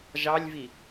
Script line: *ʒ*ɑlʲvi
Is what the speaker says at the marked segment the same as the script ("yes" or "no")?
yes